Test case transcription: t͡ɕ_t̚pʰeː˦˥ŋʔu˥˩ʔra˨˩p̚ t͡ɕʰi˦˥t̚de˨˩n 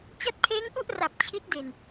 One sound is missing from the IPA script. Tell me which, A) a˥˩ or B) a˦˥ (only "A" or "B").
B